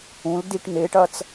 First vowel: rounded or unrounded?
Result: rounded